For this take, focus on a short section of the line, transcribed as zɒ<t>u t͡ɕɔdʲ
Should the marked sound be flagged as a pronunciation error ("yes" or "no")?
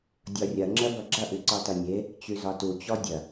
no